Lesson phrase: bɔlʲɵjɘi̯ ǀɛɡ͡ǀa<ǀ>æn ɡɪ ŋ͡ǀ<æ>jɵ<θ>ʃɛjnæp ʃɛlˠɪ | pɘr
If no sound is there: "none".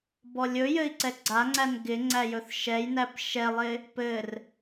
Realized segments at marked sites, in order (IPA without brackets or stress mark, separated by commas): ŋ͡ǀ, æ, θ